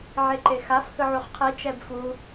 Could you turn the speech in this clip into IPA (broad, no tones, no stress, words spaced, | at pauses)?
ʕeǃexaf hɯʕuχqʰi t͡ʃɛbfu